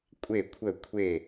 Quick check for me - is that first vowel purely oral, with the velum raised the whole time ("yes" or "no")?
yes